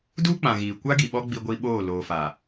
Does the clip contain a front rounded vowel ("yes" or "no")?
no